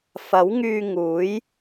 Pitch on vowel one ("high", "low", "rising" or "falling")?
rising